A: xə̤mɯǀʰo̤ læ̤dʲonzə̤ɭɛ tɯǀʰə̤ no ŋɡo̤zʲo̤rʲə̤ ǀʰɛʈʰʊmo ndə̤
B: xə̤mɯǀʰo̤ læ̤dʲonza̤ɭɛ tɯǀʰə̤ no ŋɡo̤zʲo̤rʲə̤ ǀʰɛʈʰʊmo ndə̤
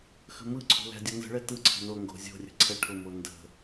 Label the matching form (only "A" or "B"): A